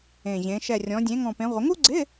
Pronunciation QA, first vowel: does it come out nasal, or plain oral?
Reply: nasal